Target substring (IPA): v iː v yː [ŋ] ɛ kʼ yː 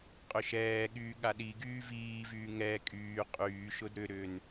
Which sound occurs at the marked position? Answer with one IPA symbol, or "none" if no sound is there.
ŋ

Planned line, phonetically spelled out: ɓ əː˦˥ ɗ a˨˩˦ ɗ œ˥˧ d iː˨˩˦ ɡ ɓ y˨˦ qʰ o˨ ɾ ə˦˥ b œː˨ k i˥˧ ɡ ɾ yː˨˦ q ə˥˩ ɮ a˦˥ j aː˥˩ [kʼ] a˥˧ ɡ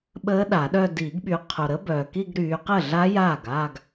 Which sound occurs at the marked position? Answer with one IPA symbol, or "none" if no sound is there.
ɡ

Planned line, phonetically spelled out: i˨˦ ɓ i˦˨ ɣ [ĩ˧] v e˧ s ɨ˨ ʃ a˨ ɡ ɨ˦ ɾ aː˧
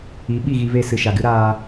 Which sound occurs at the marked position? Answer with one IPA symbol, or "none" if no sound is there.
i˧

